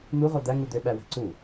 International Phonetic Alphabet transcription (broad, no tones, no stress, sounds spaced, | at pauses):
n̪ u ʁ o d̪ æ ŋ u d̪ ø ɓ æ w æ̤ ǀ u